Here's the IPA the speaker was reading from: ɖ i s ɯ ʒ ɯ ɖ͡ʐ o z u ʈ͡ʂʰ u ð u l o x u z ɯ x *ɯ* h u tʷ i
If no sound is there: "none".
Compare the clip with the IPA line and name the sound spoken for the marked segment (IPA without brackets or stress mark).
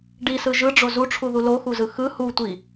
ɯ